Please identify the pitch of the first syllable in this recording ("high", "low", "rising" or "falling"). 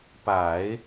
low